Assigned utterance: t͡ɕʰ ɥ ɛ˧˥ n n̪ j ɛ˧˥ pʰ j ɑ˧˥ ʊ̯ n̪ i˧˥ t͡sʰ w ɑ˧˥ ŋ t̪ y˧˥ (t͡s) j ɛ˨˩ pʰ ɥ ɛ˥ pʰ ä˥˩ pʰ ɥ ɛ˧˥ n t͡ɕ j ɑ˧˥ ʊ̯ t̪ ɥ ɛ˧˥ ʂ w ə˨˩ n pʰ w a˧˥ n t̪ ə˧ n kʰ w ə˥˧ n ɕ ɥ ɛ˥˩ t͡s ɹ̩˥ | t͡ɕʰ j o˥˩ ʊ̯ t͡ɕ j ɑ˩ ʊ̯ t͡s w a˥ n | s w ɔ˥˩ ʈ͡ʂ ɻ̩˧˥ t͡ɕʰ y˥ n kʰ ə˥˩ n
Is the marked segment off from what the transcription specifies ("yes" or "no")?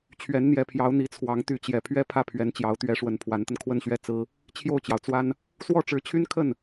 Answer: yes